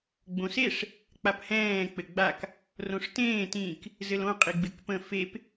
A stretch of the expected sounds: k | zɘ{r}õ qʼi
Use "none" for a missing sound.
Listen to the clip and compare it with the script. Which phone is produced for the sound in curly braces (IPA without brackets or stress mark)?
l